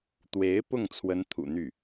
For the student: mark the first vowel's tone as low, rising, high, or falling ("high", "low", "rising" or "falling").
rising